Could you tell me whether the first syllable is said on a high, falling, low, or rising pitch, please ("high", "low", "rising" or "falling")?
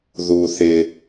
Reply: low